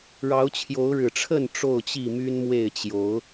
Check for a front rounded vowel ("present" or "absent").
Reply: present